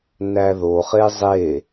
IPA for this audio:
n æ ð o χ e zˤ e

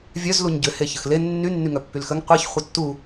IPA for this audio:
vʲ œ z l u ɲ ɟ ʏ h e ç ə x l e nː y nː y ŋ œ pː y l x ə ŋ qʷ e ç χʷ œ tː u

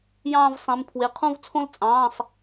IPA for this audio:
j ɑ̃ː˥˧ v sˤ ĩ˩˧˩ m pʰ w e˩˧˩ qʰ ũ˥˧ v t͡sʰ õ˥ l t͡sʼ ɑ̃ː˩˧˩ sˤ

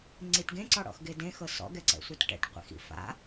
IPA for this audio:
ŋ͡ǀ i t ɡ ẽ ǀ ɔ ɽ ɔ̰ x ɡ e d ẽ x ɤ s ɔ̰ ɡ ɛ ǀ ɛ̰ sʷ ɛ t ʈ ɛ̰ ʈ qʷ ḭ x ḭ f a̰

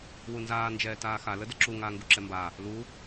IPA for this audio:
w u n z aː n d͡ʒ ɛː t aː x a l ə d ə ǁ u ŋ aː ŋ ɡ u ǁ ɛ m b a | l u

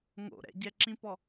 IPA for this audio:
ŋ o̰ ɾ ɛ̰ ɟ ɛ ǁ ĩ p ɔ

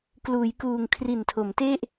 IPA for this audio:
k l uː˩˦ j k uː˨˩ ŋ kʰ r i˨˩ n tʰ o˩˦ m t e˥˩ ʔ

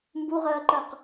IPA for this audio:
m b u ʁ ɜː ǃ ɜ q

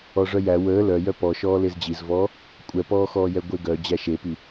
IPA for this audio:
ɔ ʐ œ j æ w əː l œ j œ p ɔ ʃ ɔː l e z d͡ʑ i z v ɔː | kʷʼ ɛ p ɔː x ɔː j ɛ ɡʷ e ɡ œ d͡ʑ æ ʃ e p i

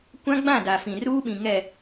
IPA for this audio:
kʷ ã˦ ɡ͡b ã˦˨ d a˨ f ĩ˨ r uː˦ ɓ ĩ˨ ŋ ɛ˨

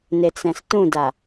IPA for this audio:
n e t͡s ɛ̃ s t ũ d a

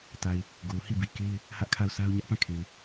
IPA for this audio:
t a˨ ɪ̯ | ɡ o˨ ʊ̯ h i˦˨ b i˨ k e˦ ɪ̯ | h ä˦ ʔ kʰ a˦˨ ʊ̯ sʰ a˦ ʊ̯ ɲ ä˦ ʔ p ã˦˨ kʰ e˨ ɪ̯

